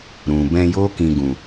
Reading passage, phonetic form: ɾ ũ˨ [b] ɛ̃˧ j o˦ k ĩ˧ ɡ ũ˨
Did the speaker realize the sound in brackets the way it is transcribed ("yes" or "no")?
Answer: yes